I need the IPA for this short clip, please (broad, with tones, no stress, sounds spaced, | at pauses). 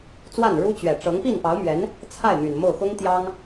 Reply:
t͡s w a˥˩ n ɻ u˥ t͡ɕ ɥ ɛ˨˩ ʈ͡ʂ ɤ˧˥ ŋ p i˥˩ n p ɑ˧˥ ʊ̯ m ɥ ɛ˧˥ n | t͡sʰ a˥˩ ɪ̯ m y˨˩ n m o˥˩ ʊ̯ x ʊ˥ ŋ t̪ j ɑ˥ ŋ